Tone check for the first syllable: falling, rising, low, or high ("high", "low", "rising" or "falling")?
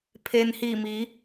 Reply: low